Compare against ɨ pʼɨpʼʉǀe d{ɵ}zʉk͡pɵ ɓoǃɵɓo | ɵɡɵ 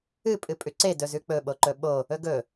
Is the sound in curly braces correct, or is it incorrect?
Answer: correct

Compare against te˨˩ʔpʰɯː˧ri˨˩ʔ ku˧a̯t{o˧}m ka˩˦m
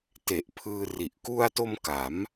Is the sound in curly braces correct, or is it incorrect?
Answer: correct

